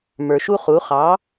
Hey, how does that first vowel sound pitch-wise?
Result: low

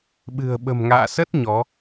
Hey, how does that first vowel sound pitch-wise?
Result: low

